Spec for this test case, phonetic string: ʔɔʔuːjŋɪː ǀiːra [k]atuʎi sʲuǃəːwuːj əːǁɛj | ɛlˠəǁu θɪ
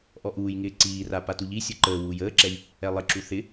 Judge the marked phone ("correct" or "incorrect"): incorrect